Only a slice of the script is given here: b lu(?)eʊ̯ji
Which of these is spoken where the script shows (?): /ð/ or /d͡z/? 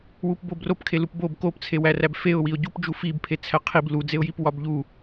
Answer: d͡z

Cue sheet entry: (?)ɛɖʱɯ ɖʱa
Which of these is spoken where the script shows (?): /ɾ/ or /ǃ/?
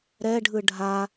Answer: ɾ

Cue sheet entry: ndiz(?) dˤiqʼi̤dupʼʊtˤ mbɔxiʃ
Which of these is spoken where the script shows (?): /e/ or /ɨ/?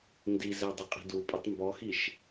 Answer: e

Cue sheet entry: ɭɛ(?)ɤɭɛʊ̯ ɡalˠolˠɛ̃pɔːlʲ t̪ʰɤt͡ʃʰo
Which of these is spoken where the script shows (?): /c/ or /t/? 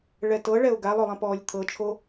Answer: t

